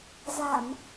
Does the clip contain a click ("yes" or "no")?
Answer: no